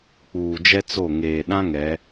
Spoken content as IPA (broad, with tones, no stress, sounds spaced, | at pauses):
k͡p uː˨ d͡ʒ ɛ˦ t͡s o˦˨ ŋ eː˨ ɗ ã˦ ŋ ɛ˨˦